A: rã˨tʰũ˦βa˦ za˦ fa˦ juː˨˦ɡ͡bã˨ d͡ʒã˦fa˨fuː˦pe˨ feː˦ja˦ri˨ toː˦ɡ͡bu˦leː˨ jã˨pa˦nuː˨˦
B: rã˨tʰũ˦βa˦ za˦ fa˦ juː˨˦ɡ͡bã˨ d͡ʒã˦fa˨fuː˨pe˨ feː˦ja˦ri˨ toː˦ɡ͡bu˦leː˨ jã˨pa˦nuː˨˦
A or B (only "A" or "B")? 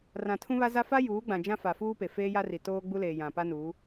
A